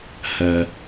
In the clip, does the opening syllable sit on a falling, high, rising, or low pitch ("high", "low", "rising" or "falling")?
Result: high